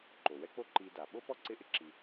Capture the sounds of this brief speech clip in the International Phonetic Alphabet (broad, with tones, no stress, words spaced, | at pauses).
ǃo˩ wɛ˦k͡po˦ǃi˨ da˩ɓo˥ pɔ˥ǀɪ˦ʔɪ˦ ǁi˨